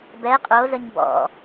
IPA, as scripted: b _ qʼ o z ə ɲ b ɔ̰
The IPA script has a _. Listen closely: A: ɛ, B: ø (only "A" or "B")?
A